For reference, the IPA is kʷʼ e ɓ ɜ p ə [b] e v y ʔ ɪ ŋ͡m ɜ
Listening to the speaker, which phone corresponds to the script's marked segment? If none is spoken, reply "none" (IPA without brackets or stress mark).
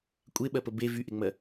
b